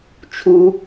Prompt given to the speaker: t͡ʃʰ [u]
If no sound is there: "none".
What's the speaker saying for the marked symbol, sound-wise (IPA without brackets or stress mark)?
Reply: u